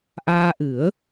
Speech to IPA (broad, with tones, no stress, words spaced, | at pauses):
ʔaː˧ʔɨ˨˩˦ə̯